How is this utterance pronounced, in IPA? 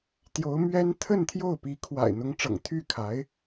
t̪jo˧˥ʊ̯mɥɛ˥n t̪ʰə˥˧n t̪ʰjo˥˩ʊ̯pi˧˥ kʰwa̰˨˩ɪ̯ n̪ʊ˧˥ŋʈ͡ʂɤ̰˨˩ŋ t̪ʰy˥˩kʰa˧˥ɪ̯

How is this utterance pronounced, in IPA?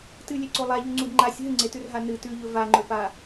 tɨlʲeǀo lˠaʎʉŋ͡ǀud ŋ͡ǃasʲ ɦɨŋ͡ǀetʉrɦa nɨ tʉʎɵ vaŋ͡ǃɵpa

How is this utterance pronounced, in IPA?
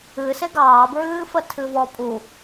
ɨse ɡɑːbɹɨːfə tʰɨvɔpʼu

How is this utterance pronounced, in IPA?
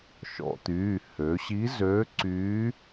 ʃɔ̰˩˧t̪yː˩˧˩ hø˩˧ɕi˧˥zø˧˥ǀyː˧˥

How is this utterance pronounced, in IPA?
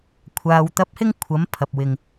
kʷʰaː˨w t̪ɐ˧p̚ hɪ˥ŋkʷʰɐ˨˥m pʰɐ˨p̚wɪ˨ŋ

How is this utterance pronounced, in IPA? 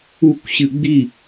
ukʷɕɨ ɡ͡bi

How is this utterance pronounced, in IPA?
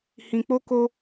hĩ˧k͡po˦ko˦

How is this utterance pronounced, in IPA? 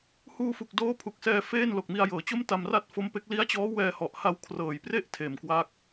huː˧fu˨˩k̚ doː˦˥ pʰu˨˩k̚sɛː˧ feː˥˩n lo˨˩k̚mi˧a̯jɤː˩˦t͡ɕo˥˩m ta˧mra˥˩t̚fo˦˥mpe˦˥k̚ li˦˥a̯t͡ɕɔː˦˥ wɛː˧hɔ˨˩ʔha˧w kʰrɤː˨˩jpre˥˩ʔ tʰeː˨˩mkwa˦˥k̚

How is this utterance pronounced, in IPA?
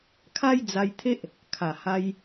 kʰa˦jd͡za˧jt̪ʰe˦ʔ | kʰa˨˩ha˧j

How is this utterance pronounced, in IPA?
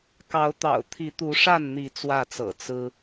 kɑ˨˦ʊ̯t̪ɑ̰˨˩ʊ̯t̪ʰi˨˦t̪u˨˦ ʂa˥˨nn̪i˨˦ t͡swä˥˨t͡sɤ̰˨˩ t͡sɹ̩˦

